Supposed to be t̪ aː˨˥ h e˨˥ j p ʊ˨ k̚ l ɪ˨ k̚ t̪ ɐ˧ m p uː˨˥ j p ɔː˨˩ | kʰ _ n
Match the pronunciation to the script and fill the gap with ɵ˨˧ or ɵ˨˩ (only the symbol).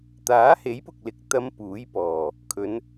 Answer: ɵ˨˧